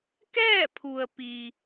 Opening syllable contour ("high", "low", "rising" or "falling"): falling